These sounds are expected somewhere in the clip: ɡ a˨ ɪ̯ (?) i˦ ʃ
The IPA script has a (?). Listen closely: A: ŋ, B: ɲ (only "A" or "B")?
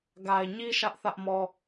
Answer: B